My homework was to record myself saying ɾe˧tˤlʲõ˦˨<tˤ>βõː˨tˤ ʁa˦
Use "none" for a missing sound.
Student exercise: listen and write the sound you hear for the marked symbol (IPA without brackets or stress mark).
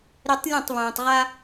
tˤ